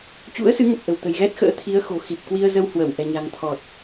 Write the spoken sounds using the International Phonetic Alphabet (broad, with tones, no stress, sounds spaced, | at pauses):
t͡ɕ ṵ˧˥ ə̯ s ɨ˨˦ ŋ ə˨˩ p̚ ʔ ə̤˨˩ w t̪ ə̤˨˩ j ɣ ɛ˦˥ t̚ x ə̰ː˧˥ t̪ʰ i˨˦ ə̯ x o̤˨˩ x i˨˩ p̚ k w i˧ ə̯ z ə˧ w h w ə˧˩ w ʔ ɛ̤˨˩ ɲ a̤˨˩ ŋ t̪ʰ ɔ˨˩ t̚